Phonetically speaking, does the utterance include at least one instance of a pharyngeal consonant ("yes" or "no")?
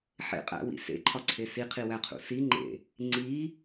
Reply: yes